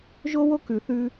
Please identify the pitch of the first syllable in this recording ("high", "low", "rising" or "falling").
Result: high